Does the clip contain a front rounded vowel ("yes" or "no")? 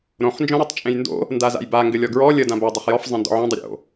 no